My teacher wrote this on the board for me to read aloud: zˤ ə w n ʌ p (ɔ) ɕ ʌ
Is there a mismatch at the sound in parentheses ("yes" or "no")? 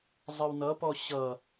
no